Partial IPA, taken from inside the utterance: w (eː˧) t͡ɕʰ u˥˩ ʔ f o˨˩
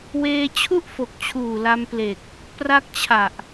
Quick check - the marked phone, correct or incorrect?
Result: correct